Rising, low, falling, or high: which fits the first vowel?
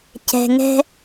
low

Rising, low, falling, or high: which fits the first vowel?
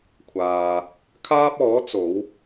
low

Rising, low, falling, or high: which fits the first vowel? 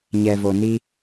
low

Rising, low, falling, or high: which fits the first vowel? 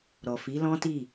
low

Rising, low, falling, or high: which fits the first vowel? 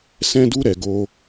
high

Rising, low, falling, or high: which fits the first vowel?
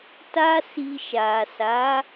high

